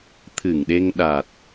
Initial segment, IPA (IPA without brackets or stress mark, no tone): t̪ʰ